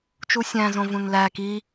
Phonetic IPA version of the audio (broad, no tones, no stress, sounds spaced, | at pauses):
t͡ʃ u sʲ æ̃ z õ v ũ n l æ k i